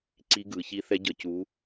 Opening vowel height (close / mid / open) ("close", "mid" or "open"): close